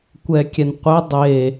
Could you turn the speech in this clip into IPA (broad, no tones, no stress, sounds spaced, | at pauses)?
kʷ ɛ kʲ ɛ n qʷ ɛ dˤ e